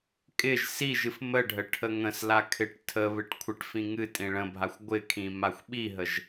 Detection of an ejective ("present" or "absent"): present